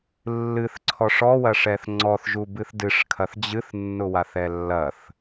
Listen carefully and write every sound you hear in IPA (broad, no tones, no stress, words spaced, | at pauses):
lːɨθǀʰɔʂ ɔwɐʂɛθ ŋ͡ǀɔθʒubɨθ dɨʂkʰɐθ d͡ʑɨθnːʊwaθɛ lːɐθ